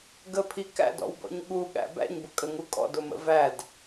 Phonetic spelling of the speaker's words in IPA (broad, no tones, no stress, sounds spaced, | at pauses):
ɡ ə pʰ i k æ̰ d ɔ̰ w b ɔ̰ ɲ ɠ u ɠ æ̰ b æ̰ ɲ b ʊ kʼ ə ŋ u kʼ ɔ̰ d ʊ m ə̰ v æ d